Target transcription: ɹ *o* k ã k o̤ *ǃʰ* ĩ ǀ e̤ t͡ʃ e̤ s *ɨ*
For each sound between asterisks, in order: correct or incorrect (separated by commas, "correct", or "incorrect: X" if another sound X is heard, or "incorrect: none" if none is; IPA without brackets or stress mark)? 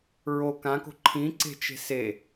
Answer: correct, correct, incorrect: e